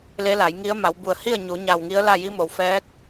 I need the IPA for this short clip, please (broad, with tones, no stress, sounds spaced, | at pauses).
l e˧˥ l a˩˧ j ŋ i˧˥ ə̯ m a˩˧ w b u˧˩ ə̯ h i˥˨ ə̯ ɲ u˩˧ ɲ a˧˩ w ŋ i˧˥ ə̯ l a˥˨ j i˧˥ m o˩ w f ɛː˧˥ k̚